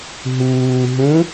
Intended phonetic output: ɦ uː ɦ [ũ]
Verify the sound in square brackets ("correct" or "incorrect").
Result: correct